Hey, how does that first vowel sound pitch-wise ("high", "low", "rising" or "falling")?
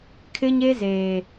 high